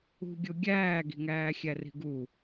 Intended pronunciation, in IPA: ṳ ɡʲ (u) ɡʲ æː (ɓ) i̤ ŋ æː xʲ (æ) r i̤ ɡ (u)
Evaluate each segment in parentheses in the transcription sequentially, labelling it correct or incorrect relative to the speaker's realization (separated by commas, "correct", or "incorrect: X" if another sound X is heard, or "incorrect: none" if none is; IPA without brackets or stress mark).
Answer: incorrect: o, incorrect: ɡ, correct, correct